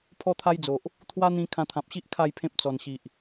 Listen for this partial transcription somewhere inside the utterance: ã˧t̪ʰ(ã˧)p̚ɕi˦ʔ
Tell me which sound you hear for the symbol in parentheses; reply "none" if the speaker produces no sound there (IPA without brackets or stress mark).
ã˨